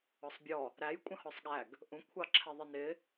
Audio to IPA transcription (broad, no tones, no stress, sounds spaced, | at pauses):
ɔ sˤ bʲ ɔ | ɾ æ j kʷʼ ə̃ h ɔ sˤ ɠ æ ɡ | ʔ ũ kʷʰ ɑ ǁʰ ɛ ðˤ ɪ n ɪ